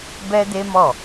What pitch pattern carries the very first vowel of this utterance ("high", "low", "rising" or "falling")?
high